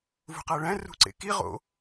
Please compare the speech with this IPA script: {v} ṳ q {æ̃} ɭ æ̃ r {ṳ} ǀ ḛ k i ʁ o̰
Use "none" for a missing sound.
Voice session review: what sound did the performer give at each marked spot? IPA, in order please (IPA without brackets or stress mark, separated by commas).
v, æ, ṳ